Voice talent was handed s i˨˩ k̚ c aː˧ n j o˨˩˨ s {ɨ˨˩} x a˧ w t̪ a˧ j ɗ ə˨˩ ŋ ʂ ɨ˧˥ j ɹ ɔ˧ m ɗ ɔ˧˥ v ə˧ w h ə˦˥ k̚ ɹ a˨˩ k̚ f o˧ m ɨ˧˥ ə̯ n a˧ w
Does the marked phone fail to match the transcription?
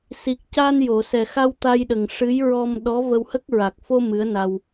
yes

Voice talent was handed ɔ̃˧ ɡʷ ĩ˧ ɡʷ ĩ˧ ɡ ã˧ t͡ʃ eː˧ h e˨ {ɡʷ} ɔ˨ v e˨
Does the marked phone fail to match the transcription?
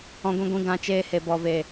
yes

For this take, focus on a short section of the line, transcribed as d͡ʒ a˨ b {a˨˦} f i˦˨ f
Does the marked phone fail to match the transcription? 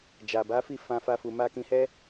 no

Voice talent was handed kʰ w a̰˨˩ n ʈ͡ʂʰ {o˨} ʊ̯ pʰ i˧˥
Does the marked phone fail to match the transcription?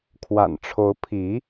yes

